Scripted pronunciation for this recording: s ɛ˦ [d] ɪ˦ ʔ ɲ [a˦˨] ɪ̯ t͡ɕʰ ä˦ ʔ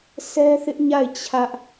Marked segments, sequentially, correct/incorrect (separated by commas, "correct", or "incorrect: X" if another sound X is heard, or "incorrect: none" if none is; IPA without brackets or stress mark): incorrect: θ, correct